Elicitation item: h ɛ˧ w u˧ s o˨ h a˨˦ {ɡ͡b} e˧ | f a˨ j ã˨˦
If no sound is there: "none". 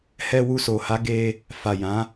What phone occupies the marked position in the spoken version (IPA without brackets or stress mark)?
ɡ